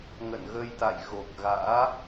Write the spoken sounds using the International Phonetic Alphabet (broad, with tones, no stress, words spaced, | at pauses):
ŋə̰˧˨nɣə˧jt̪a̰˧˨j ɣo˨˩k̚ɣa̰ː˧˥